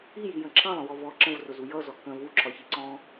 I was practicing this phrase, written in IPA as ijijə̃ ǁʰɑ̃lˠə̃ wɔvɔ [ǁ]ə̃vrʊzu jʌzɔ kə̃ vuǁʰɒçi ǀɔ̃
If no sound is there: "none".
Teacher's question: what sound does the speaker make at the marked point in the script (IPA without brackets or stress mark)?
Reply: ǁ